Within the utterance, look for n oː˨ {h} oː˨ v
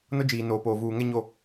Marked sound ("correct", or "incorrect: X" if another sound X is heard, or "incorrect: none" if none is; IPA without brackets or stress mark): incorrect: p